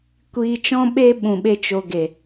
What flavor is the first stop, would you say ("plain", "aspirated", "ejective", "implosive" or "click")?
plain